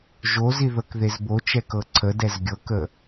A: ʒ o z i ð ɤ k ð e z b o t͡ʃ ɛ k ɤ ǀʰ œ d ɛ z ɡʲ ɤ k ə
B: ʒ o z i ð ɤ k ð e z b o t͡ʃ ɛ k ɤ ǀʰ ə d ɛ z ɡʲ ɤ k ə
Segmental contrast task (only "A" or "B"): B